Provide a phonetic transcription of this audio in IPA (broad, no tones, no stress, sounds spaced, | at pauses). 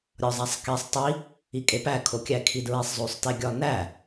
ɾʲ ɒ zˤ æ sˤ k i sˤ tˤ i | i kʼ e p æ kʰ o kʲ æ kʰ i d ɹ e sˤ zˤ o sˤ t e ɡʲ ɒ n æ